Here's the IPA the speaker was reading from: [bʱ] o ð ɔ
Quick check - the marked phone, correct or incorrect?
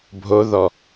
correct